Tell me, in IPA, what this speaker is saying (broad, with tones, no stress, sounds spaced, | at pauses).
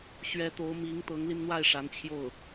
ɕ ɥ ɛ˧˥ t̪ o˧˥ ʊ̯ m i˧˥ ŋ t̪ ɤ˧˥ ŋ l i˧ n n̪ w a˥˩ ɪ̯ ʂ a˧˥ n t͡ɕʰ j o˥˩ ʊ̯